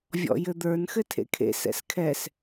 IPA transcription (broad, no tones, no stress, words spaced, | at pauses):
vʲɔ̰jɘd̪ə˞n xɘtʰḛkʰḛ sɛ̰skʰɛs